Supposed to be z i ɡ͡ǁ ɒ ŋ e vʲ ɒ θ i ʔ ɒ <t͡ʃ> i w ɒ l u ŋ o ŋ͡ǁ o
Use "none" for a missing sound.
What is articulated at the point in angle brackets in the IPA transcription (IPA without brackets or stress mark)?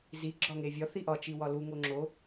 t͡ʃ